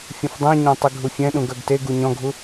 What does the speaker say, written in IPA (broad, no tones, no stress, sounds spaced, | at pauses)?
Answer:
fʲ ə̃ f dˤ ɛ̃ ɲ ɔ̃ tˤ i ɡʱ u fʲ ɛ̃ ɗ ũ ɡ œ ɡ t e ɡ u ɲ ɔ̃ ɡʱ u